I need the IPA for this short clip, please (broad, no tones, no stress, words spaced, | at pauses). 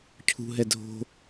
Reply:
cʰṳɦɛ dʱo̤